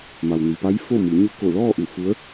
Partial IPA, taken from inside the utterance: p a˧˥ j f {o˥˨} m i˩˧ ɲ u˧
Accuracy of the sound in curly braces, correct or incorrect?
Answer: correct